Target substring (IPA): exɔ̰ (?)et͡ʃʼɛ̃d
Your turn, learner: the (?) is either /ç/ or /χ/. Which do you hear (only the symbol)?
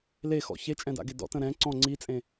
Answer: ç